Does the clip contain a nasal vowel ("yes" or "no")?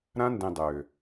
yes